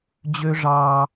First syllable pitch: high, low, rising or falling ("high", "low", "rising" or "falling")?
high